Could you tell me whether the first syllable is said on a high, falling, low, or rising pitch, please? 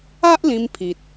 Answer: high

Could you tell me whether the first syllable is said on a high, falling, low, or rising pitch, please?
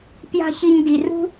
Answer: high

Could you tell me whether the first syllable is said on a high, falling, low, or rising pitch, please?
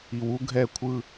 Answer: low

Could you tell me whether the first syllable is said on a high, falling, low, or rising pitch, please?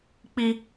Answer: low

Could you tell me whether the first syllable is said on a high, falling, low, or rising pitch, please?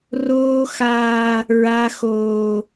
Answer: high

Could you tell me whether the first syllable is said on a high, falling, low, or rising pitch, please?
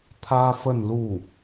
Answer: high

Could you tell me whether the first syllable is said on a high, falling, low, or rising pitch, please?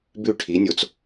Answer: falling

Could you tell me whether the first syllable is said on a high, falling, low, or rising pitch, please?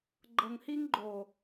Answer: low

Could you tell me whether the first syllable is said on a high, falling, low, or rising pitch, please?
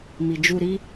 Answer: low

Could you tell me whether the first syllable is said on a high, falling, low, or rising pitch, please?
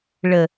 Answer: low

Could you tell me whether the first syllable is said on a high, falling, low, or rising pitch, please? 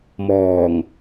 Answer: low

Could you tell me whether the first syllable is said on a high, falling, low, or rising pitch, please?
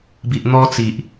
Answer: low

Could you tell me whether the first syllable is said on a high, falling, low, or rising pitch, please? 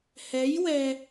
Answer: rising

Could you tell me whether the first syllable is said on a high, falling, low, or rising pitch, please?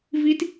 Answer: high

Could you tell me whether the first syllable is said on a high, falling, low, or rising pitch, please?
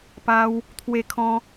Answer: high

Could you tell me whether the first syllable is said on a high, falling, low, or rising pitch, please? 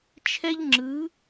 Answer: high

